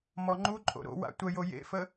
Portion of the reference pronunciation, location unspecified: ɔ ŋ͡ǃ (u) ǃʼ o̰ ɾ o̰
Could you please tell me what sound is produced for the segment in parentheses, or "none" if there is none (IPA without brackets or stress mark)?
u